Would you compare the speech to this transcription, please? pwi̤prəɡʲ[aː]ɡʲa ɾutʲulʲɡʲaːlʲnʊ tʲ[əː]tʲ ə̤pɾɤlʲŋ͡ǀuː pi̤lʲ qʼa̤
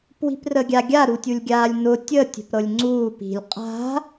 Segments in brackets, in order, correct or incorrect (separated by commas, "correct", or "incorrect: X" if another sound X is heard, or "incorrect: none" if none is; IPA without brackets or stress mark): incorrect: a, correct